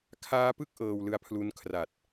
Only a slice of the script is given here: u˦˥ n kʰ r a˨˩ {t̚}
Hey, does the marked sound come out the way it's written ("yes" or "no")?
yes